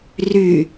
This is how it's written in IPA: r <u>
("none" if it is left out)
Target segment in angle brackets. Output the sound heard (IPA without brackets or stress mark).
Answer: y